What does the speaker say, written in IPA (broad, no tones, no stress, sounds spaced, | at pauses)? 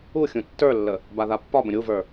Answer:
u xʲ ũ tː ə˞ lː ə | b a ð a pː ɒ b ə̃ ɾʲ u v ə˞